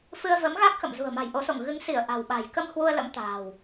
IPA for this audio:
f ɨ˧ ə̯ v ə˨˦ m ɣ a˦˥ k̚ x ə̰˧˨ m z ṳ˨˩ ə̯ m a̤˨˩ j ʔ o˨˦ s o̰˧˨ ŋ ɣ ɨ˨˦ ŋ s i˧˩ ə̯ ʔ a̤˨˩ w ɓ a̤˨˩ j k ə˧ m h w u˧ ə̯ l ə̰˧˥ m t̪ a̤ː˨˩ w

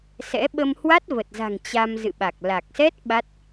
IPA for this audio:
s ɛ̰˧˥ ɓ ə˧ m h w a˦˥ t̚ v ə˨˩ t̚ z a̤˨˩ ŋ t͡ɕ a˧ m z ɨ̰˧˨ ɓ a˨˩ k̚ l a˨˩ k̚ s ɛ˦˥ t̚ ɓ a˦˥ t̚

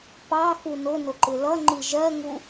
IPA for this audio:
p ɑ x u n ʊ n ʊ ǃ ɪ l ʌ ŋ͡ǃ i ʒ ɜ ŋ u

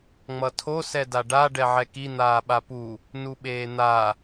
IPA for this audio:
ŋ͡m ʌ tʰ o s ɛ d a ɖ a ɖ ɛ ʕ ɛ k i n̪ aː ɓ a p u | n u ɓ eː n̪ a

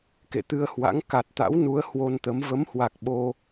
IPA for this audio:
k ḛ˧˨ t̪ ɨ˧ ə̯ h w a̰˧˥ ŋ k a˨˩ t̚ t̪ a̰˧˥ w n u˨˦ ə̯ h w o˧ n t̪ ə˨˦ m v ə˨˦ m h w a˨˩ k̚ ɓ o˧

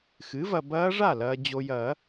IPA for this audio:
x ɨ˩˥ v ɐ˨ b ɐː˦˥ ʐ a˥˩ l ɐː˨ d͡ʑ o˨ j ɐ˨˩˦

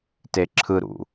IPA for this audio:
t e ǁʰ ɯ ɾ ṵ

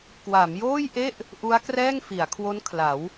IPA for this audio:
k w a˩˦ m j oː˥˩ j ʔ e˥˩ ʔ | ʔ u˦˥ a̯ k r ɛː˥˩ ŋ f i˩˦ a̯ kʰ w o˦˥ n kʰ l a˩˦ w

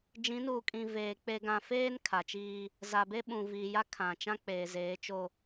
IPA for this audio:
d͡ʒ ĩ˨˦ n uː˨ kʼ ĩ˨ v eː˨ k͡p e˨ ɡ ã˨ f eː˦ n kʰ a˨ t͡ʃ iː˦ | z a˨ b e˦ ɓ ũ˨ v iː˨ j a˦ kʰ ã˨ t͡ʃ ã˦ k͡p eː˨ z eː˨˦ t͡ʃ o˦

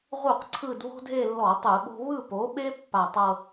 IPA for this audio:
ʁ u˥˩ q ǀʰ ɯ˥˧ d β o̤˥ dʱ e˥˧ lː ɔ˧˩˧ tˤ ɯ˧˩˧ ɓ o̤˥ β ɯ˥˧ p o˨˥ ɓ e˥ pː a˧˩ tˤ ɤ˥˧

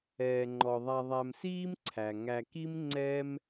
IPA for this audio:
ɛː˩ ŋ͡ǃ ɔ˩ ðˤ a˨ ðˤ æ˨ m s iː˥ m ǀʰ æ˩ ŋ æ˨ k i˥ m ŋ͡ǀ ɛ˥ m

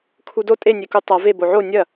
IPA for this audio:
kʰ u d o tʼ e nʲ e k u tˤ a v e b o ʕ o nʲ ɐ

